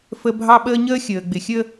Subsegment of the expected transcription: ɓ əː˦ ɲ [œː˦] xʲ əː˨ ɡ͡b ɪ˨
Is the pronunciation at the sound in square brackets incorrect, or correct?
incorrect: əː˦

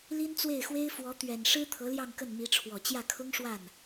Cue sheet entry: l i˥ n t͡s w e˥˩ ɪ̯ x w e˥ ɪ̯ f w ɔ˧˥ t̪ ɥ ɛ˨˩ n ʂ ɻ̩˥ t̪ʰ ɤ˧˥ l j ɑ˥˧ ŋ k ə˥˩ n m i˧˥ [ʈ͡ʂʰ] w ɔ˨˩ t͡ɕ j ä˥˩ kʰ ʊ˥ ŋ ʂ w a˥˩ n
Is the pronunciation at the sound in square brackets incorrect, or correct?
correct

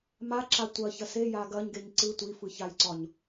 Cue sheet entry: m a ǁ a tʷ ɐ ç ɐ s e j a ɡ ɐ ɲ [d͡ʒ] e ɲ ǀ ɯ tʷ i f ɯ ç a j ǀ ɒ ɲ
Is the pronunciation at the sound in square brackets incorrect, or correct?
incorrect: ɡ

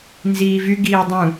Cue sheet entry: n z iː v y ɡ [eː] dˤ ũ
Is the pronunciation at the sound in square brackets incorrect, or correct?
incorrect: iː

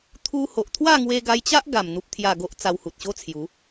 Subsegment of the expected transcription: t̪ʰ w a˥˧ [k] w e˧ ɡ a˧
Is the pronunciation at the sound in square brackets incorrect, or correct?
incorrect: ŋ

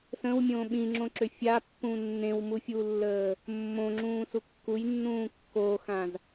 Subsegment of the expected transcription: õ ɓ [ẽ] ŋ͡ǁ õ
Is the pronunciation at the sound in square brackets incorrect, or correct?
incorrect: ĩ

